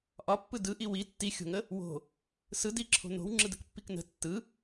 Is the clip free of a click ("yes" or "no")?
no